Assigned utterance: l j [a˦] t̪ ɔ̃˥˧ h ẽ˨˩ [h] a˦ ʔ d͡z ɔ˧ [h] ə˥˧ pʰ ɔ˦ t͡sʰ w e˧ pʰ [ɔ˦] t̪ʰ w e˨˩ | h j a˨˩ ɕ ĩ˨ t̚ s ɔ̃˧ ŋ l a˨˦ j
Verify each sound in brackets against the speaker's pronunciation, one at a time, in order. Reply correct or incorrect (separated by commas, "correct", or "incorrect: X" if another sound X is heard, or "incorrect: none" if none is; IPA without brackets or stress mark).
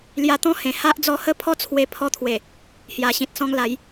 incorrect: a˧, correct, correct, incorrect: ɔ˧